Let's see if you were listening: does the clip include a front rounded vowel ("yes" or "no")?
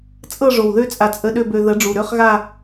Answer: yes